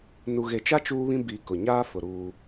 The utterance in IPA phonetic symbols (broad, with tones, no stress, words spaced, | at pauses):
nu˨ɣe˨t͡ʃa˦ t͡ʃuː˦βĩ˦ bi˨ kʊ˨ ɲaː˦fʊ˨ ɾuː˦